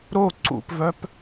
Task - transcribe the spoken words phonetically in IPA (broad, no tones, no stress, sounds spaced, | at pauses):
ɾ o ǀ ṵ p v œ p